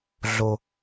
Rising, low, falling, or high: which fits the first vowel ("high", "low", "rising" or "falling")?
low